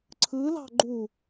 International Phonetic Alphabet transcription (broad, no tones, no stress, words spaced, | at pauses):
ǀʰɯlɑ̤ ɡ͡ǃu